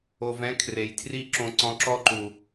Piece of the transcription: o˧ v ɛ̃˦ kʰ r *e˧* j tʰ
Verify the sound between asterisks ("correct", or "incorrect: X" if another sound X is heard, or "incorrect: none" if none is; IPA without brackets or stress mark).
incorrect: e˨